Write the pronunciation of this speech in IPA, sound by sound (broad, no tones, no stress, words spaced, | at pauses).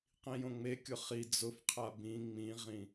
qĩjõŋ͡mekʲʊ χi d͡zʊfqʰa bĩ ŋ͡mĩʁĩ